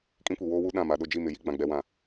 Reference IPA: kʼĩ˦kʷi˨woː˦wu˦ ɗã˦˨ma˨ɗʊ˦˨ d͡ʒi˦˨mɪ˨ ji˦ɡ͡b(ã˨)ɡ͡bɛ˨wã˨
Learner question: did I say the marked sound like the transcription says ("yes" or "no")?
yes